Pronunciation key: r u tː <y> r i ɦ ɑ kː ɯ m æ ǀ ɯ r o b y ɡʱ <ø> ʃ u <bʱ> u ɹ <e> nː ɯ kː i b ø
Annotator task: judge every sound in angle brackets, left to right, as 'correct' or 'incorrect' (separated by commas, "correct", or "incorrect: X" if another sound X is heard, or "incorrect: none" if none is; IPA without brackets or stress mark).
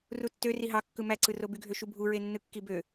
incorrect: ø, correct, correct, correct